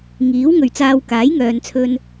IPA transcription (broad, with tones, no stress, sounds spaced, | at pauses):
ŋ iː˨˥ w ŋ ɵ˨ ɥ t͡s aː˧ w k aː˨˥ j ŋ œː˨ n t͡sʰ ɵ˧ n